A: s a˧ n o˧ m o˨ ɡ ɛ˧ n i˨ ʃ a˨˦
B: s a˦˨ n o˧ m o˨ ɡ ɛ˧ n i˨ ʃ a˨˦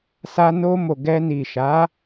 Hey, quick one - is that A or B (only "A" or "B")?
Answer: A